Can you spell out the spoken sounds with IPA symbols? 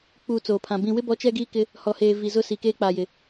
k͡pu˨ t͡soː˨pʰã˨ bĩ˨wɪ˦bɔ˨˦ t͡ʃɛ˦ɡiː˦kɪ˦ | hɔ˨heː˨ vi˨zʊ˦si˨keː˦ k͡paː˨jɪ˨

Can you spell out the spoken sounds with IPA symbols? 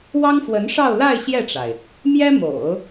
wɑ˥ŋfwə˧˥nʂɑ˥˧ʊ̯ la˥˧ɪ̯ ɕjɛ˥˩ʈ͡ʂa˩ɪ̯ | mjɛ˥mo̰˨˩˦ʊ̯

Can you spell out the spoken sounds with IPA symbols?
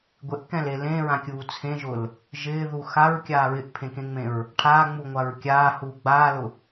ɡʷeʔkɛ̃le lẽɹãkʲuː t͡sʰẽʒʊl | ʒɪːðu xaɹkʲaː ɹɪʔpʰẽkẽŋ͡mẽɹ | ʈʰaːŋ͡muŋʷaɹ kʲaːhuː ɡ͡baːlʊ

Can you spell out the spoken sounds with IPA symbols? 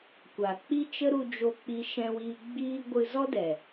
kʷa˨k͡pi˦t͡ʃə˦ ɾu˧ d͡ʒo˧k͡pi˧ʃɛ̃˧wiː˧ ɡ͡biː˧ ɡʷɨ˧zɔ˦dɛ˨

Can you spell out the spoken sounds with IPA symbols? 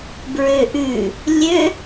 bɹøʔʉ | lʲø

